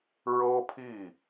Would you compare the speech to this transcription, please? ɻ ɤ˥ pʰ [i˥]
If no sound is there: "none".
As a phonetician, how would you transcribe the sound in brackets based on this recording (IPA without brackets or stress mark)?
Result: i˥˩